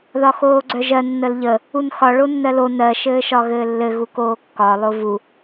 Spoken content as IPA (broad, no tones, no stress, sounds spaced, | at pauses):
ð ɒ x oː ɡ͡ǀ œ ʒ ɜ nː ə l ʎ ə | u n x ɒ ɭ o nː ɜ l o n ɜ ʃ ɘː ʃ ɒ ɣ ɘː lː ɘ ɣ u k oː kː ɒ lˠ o v u